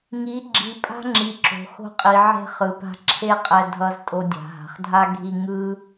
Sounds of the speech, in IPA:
ŋ i˨˦ ɡ͡ǁ i˨ pʼ a̤˦ ŋ͡ǁ i˨ ǁ o̤˨ x o̤˧ qʼ i˨ ʕ e̤˧ χ ɯ˨ p a̤˧ ǁʰ e˦ qʼ ɛ˧ dʱ ʌ˧ z tʼ o˧ dʲ a̤˨ ɦ a̤˨ χ dʱ a˦ ɡʱ i˧ ŋ ɯ˦

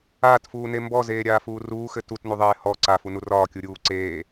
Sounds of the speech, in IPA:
aː t f uː n e m b ɔ z eː ɾʲ aː f uː r uː x ɘ t u t n u ðˤ eː h ɔ ǀ a f u n u r ɒː kʲ u ɾʲ uː ǀ eː

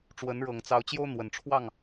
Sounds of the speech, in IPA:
ʈ͡ʂ w ə˨˦ n ɻ ɤ˨˩ ŋ t͡s ɑ˨˦ ʊ̯ t͡ɕ j o˦ ʊ̯ n̪ w ə˨˩ n ʈ͡ʂʰ w ɑ˥˨ ŋ

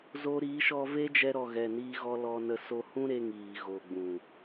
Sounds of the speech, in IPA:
z o˧ ɾ iː˨˦ ʃ ɔ˧ v e˦ d͡ʒ ɛ˧ ɾ ɔ˨ ɣ ɛ˨ n iː˧ ɣ ɔ˧ l ɔ˧ n ə˧ s o˧ h ũ˦ ɾ e˧ ŋ iː˨ ɣ o˨ ɡ͡b ũ˨

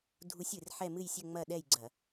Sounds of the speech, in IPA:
dʱ u˧˥ sʲ ɨ˩˧ r ħ ɛ˥˨ m ɨ˥˨ j sʲ ɘ˥˨ ŋ͡m ɐ˥˨ ɗ ɛ˥˨ j ɡ͡ǀ ɐ˧˩˧

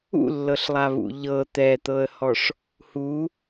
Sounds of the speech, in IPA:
ṵ lː ɤ ɬ lˠ a β ṵ ʎ ɤ t̪ ɛ t̪ ɤ ə̯ h ɔ ʂ | h u

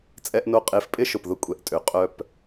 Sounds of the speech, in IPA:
t͡sʼ ɛ˦ ʔ n o˦ qʼ e˧ f pʼ ɪ˦ ʃ ʊ˨ p ð ʊ˧ kʷʼ ɛ˨ ʔ tʼ ø˨ qʼ œ˧ p

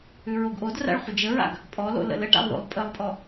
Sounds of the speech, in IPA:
ʉ ɹ o ɡ ʔ o d r a̰ ɭ χʷ ə d͡ʒ ə ɹ a̰ ɡ | pʼ ɔ l o̰ l ə̰ l ə ʈ a̰ lˠ ð o̰ lˠ pʼ ə lˠ pʼ ɔ

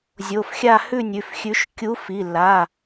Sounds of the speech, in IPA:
zʲ o˩˧˩ f xʲ a˥˨ h ʉ˥˨ nʲ ʉ˩˧˩ f xʲ ʉ˨˥ ʃ kʲ u˨˥ f i˩˧˩ lː a˩˧˩

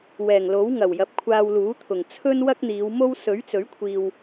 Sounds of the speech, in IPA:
w ɛː˨˩ ŋ l o˨˥ w ŋ ɐ˨˩ w j ɐ˨ p̚ kʷʰ aː˧ w l uː˨˥ t̪ʰ ʊ˨˩ ŋ t͡sʰ ɵ˥ n w ɐ˥ k̚ n̪ iː˨˧ w m o˥ w s ɵ˨˥ ɥ t͡s ɵ˨˥ ɥ kʷʰ iː˨ w

